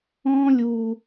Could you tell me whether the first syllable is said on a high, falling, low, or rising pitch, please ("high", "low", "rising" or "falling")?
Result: high